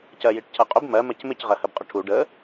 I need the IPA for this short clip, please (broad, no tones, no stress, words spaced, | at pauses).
cɜjiʈcʰʌqʼʊb mɜ mɜcmɪc ʁɜhəbqʼʊʈʰu ɖə